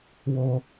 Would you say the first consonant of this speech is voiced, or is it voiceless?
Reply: voiced